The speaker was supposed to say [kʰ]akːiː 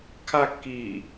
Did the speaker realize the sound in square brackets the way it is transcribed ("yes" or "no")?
yes